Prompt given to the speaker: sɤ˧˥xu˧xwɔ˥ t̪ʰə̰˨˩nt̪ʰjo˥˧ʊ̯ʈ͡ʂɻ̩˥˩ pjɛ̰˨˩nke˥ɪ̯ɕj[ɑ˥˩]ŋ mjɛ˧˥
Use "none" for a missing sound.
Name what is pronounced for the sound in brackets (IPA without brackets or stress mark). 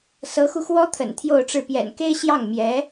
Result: ɑ˥˩